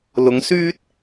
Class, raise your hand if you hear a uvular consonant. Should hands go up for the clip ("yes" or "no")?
no